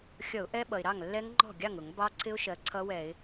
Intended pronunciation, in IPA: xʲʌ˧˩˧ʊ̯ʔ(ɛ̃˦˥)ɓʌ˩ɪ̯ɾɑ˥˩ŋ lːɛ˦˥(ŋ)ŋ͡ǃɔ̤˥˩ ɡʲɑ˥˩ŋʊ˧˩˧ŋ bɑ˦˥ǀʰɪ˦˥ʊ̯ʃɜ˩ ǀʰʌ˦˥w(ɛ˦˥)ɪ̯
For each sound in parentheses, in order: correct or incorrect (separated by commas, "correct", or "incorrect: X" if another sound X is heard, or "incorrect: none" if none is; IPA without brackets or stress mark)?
incorrect: ɛ˦˥, correct, incorrect: ɛ˧˩˧